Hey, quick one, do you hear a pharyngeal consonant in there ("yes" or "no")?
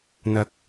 no